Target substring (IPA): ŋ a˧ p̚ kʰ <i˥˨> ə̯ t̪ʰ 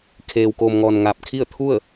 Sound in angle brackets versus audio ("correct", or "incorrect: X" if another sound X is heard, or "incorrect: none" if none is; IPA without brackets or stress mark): correct